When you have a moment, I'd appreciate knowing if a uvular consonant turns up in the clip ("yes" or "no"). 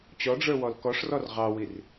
yes